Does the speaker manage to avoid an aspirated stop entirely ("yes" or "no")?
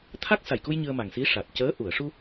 no